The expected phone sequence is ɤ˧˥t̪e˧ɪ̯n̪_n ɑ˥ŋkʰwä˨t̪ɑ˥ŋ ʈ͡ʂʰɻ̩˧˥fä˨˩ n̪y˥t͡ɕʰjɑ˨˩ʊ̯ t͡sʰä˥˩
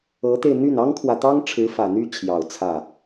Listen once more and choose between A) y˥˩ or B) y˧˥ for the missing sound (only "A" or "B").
A